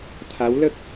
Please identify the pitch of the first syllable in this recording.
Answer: rising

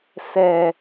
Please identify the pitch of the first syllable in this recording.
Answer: low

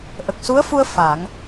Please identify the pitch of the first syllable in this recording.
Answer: low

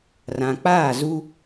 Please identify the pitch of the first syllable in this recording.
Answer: low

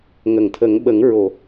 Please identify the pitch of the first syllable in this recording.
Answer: low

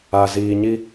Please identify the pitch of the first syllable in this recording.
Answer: low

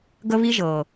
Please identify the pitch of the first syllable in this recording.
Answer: high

